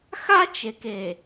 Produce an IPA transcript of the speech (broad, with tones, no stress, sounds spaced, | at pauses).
x a˦ t͡ʃ e˨ k e˨